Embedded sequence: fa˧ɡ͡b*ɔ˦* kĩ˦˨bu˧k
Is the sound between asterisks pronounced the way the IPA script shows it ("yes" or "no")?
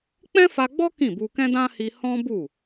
yes